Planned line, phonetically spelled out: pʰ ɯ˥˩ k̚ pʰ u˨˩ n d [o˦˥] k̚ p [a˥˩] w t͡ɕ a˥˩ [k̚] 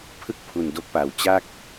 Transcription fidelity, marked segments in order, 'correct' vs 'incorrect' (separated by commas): correct, incorrect, correct